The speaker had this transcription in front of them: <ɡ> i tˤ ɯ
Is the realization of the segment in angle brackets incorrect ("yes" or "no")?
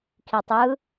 yes